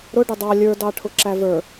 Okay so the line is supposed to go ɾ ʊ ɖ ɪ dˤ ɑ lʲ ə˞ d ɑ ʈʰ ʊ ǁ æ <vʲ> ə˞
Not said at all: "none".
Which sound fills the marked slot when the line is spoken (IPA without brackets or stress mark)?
v